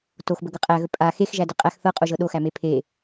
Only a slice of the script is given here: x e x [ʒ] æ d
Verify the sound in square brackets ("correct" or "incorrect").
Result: correct